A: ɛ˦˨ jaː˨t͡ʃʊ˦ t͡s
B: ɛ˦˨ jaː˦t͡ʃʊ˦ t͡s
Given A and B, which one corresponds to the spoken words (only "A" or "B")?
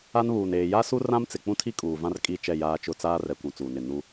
B